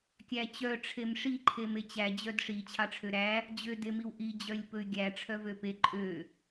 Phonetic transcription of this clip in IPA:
kʲæt͡ɕœ ʈ͡ʂʰemʂi ǃʰemet͡ɕæ d͡ʑœdʂi t͡ɕʰɑʈ͡ʂʰøɾæ | d͡ʑø demiwʔi d͡ʑœlʲpɵy̯ɡʲæ ʈ͡ʂʰœvøpe ǃʼø

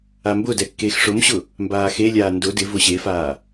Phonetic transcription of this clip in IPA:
ambʊdɛ kːeːxʂʊmɕʊ | mbaːxelʲaː ndʊ dɪvʊ ɕefaː

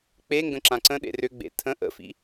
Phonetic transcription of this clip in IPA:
k͡pe ŋɡə̃ǁãǀə̃ɗḛ rʏɡ͡bḛ tʰə̃ ʔə̰fḭ

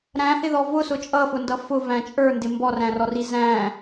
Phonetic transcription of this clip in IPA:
ɾæ̃hɪðɔ vʊsʊ t͡ʃʼʌfʊndʌ fʊvæ̃ t͡ʃʼə˞ndɪ mbɔræ̃rɔri zæ̃

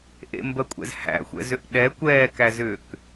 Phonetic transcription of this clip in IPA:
ʔḛmbɜkʷʼɛ̰z hæ̰xʷɛ̰zʏʔ ɗɛ kʷɛːkæzʏːk

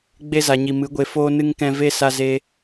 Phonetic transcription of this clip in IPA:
ɡ͡be˧za˨ɲi˨ mɨ˨˦ɡʷe˧foː˦ nɨ˦ŋkɛ̃˦ ve˦ sa˧zeː˧

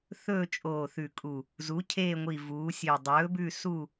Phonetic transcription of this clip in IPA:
θɵː˦˨t͡ʃʼoː˨˩θʉ˨˩kʼu˨˩ | zu˩˥cʰeː˦˨ŋʷi˨˩ vuː˩˧sʲø˨˩dˤɵː˩˥bʉ˦˨ su˦˨

